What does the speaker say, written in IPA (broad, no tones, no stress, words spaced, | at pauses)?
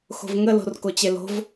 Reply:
xo̤vŋə lo̤rkot͡ɕelo̤v